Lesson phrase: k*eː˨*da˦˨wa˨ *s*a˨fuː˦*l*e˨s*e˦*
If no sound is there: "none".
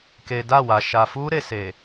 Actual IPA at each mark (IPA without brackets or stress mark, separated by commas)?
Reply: e˨, ʃ, ɾ, e˨